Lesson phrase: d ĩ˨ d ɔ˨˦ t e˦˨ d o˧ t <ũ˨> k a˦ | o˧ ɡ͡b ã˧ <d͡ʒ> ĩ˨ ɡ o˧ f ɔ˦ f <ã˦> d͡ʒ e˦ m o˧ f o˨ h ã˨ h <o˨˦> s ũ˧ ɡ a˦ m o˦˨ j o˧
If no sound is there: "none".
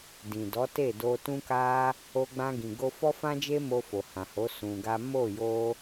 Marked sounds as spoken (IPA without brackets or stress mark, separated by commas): ũ˦, ɡ, ã˦, o˨˦